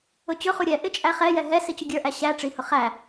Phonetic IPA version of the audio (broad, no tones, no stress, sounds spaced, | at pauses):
ʊ t͡ɕ ʊ χ u ɾʲ ɛ ʔ ɪ t͡ʃʼ æ χ ɛ j ɛ ɦ ɛ s i t͡ɕ ʊ ɡʲ ə˞ ʔ æ ɕ æ ʈ͡ʂ i h ʊ χ æ